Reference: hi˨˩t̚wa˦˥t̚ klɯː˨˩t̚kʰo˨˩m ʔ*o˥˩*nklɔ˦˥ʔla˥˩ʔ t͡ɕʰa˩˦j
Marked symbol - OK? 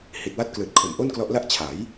yes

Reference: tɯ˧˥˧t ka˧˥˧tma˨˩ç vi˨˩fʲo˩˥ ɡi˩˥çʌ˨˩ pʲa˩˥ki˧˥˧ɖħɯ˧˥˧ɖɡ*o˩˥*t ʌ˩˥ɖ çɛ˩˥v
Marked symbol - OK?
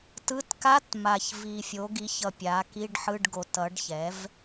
yes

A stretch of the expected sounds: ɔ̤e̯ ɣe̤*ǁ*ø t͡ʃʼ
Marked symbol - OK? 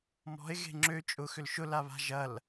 no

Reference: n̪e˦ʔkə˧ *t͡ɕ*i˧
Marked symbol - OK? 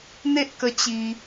yes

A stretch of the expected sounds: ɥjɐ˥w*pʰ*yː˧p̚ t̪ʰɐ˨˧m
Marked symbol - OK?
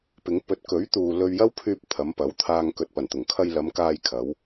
yes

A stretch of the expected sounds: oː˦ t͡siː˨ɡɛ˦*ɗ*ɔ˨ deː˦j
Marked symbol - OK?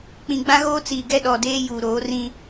yes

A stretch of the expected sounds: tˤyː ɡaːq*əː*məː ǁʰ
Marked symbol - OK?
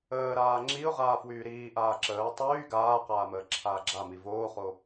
no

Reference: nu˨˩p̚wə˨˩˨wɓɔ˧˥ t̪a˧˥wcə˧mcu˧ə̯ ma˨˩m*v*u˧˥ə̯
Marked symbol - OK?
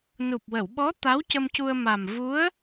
yes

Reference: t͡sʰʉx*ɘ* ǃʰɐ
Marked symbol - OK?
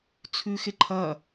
no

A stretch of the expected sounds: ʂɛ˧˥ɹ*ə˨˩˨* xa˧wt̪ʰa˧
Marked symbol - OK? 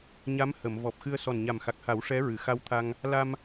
no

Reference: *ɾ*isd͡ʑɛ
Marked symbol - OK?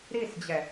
yes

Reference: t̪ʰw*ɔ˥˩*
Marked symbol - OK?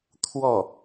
yes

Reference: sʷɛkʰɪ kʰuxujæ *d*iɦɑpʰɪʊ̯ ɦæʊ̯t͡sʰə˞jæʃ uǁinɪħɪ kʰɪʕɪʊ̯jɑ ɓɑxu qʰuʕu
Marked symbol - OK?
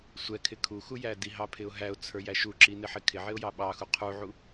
yes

